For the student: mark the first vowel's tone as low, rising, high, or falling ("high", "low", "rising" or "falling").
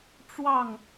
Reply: falling